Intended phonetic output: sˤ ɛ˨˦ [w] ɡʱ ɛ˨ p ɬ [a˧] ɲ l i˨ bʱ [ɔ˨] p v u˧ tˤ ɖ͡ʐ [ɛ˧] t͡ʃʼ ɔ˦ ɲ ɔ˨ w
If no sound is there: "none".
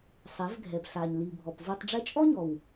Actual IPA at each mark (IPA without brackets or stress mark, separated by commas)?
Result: v, a˨, ɔ˨, ɛ˧